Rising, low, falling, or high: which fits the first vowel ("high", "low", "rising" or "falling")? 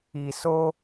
low